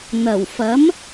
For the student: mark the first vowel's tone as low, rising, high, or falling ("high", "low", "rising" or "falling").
low